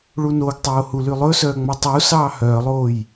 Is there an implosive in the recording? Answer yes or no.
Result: no